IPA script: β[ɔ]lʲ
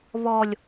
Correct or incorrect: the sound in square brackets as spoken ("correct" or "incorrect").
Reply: correct